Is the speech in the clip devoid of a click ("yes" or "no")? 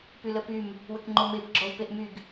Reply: no